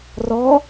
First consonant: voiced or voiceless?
voiced